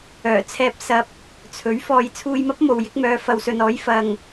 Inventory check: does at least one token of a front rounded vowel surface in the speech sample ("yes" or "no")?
yes